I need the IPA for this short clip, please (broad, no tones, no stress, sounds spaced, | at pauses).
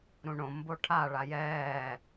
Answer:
ɾ ũ ɳ õ m b o ʈʰ a ɭ a j ɛː